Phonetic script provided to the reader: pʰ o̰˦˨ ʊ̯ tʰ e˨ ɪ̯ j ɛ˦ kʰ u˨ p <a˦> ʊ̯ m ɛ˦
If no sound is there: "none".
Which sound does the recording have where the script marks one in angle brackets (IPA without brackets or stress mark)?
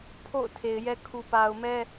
a˨